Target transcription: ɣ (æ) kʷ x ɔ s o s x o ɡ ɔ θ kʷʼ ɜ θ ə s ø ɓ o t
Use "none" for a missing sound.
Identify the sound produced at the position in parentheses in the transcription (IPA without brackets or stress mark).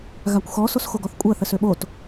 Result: a